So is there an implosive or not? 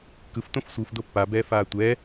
no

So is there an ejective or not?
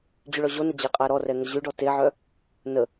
yes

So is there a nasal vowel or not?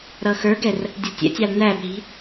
no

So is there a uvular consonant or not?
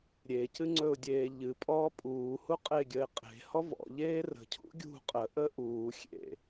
yes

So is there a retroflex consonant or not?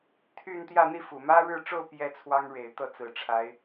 yes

